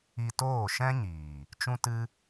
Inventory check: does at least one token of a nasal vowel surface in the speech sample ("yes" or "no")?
yes